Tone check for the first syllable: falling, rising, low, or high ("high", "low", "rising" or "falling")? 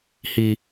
high